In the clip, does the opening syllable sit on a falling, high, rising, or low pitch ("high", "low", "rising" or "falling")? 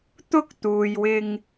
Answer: high